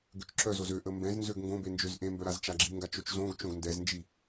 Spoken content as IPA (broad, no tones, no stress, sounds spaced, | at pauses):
ɡ ø t͡ʃ ǁ œ z o z ø ʔ ə m b ɛ̃ z n z ø ɡ ŋ ɡ õ b e n d͡ʒ ø z ʔ ẽ m b œ ɾ a z t͡ʃ a ɡ͡ǁ i ŋ ɡ a t͡ʃ o t͡ʃ z õ ɡ t͡ʃ õ ɡ n d ɛ z n d͡ʒ i